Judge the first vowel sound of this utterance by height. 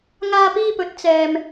low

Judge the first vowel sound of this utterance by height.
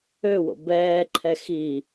mid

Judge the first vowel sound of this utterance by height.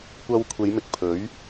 low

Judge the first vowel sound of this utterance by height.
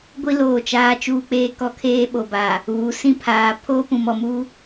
high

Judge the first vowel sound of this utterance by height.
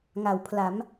low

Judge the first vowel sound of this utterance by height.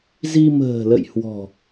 high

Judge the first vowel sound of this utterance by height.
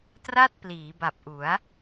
low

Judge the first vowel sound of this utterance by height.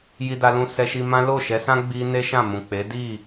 high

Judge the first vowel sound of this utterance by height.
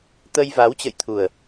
mid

